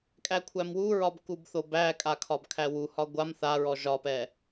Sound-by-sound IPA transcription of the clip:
kʼ æ kʷʰ æ m w u ɹ ɒ b k u b θ o b æ kʼ a kʰ ɒ b kʰ æ w u h ɒ ɡʷ a m θ a ɹ ɔ ʒ ɒ p ɛ

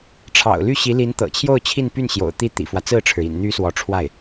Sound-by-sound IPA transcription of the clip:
ʈ͡ʂʰ ɑ̰˨˩ ʊ̯ l y˥˩ ɕ i˧˥ l i˧˥ n t̪ ɤ̰˨˩ t͡ɕʰ j o˥˧ ʊ̯ t͡ɕʰ i˥˧ n p y˥˩ n ɕ j o̰˨˩ ʊ̯ t̪ i˥˩ t̪ ḭ˨˩ f w ä˦ t͡s ɹ̩˥˩ ʈ͡ʂʰ ɻ̩˩ ḭ˨˩ n n̪ y˧˥ s w ɔ˧˥ ʈ͡ʂʰ w a˥˩ ɪ̯

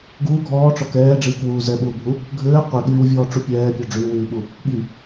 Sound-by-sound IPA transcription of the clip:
ɡ uː ɡʱ ɔː ʈ͡ʂ ɔ k ɛː ɖ͡ʐ iː k w uː z ɛ ɓ uː bʱ u | ɡʱ ɘː qʷ i ɠ yː w vʲ ɔː ʈ͡ʂ u pʲ ɛː pʲ ɔ ɖ͡ʐ yː w yː ɓ u | ɠ i

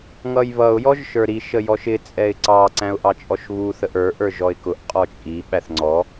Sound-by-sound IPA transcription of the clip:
ŋ ʌ j β ʌ ʊ̯ j ɔ ʒ ʃ ə˞ ɾ i ʃ ə j ɔ ʃ ɪ t͡sʼ ɛ ɪ̯ ǀ ɑ ǀ æ̃ ʊ̯ ʔ ɑ t͡ʃʼ ɔ ʃ β u θ ə ʔ ə˞ ʔ ə˞ ʒ ɔ ɪ̯ k ʊ ʔ qʼ ɔ t͡ʃʼ i ɓ æ θ ŋ͡ǀ ɔ

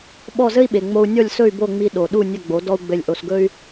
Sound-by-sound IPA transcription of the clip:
ɓ ɔ˥˩ z ɘ˥ i̯ ɓ e˩ ŋ͡m o˧ u̯ nʲ ɔ˥˩ lʲ s ɵ˥˩ y̯ b o˥˩ ŋ͡m i˧ ɗ o˩ ɗ u˥˩ nʲ ɵ˥˩ ɡ͡b o˩˥ d ɔ˥ u̯ ɡ͡b ɘ˥˩ lʲ ʔ o˧ s ɡ ɵ˥ y̯

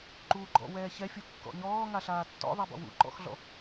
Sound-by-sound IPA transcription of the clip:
ǃ uː ɡ͡ǃ ɔ̰ w ɛː ç ɛ fʲ u kː ɔ̰ ɲ ɔː ŋ a ɬ aː tː ɔ̰ ðˤ ɛ b ɔ̰ w ṵ ǃ ɔ̰ x ɮ ɔ̰

